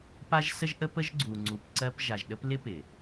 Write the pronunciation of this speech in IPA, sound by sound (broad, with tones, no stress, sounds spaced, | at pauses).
p a˦ ʒ s ə˦ ʒ ʔ ə˦ p ə˦ ʒ ɡ͡ǀ u˨ ŋ͡ǀ u˨ p ǀ ɜ˦ p ʒ a˨ ʒ ɗ ə˦ p l ɪ˦ p ɪ˨